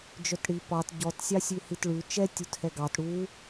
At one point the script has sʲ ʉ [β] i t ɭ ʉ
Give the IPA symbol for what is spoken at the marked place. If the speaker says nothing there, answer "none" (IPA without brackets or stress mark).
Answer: h